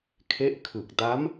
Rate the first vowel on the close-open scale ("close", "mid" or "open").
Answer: mid